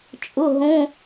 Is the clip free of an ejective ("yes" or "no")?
no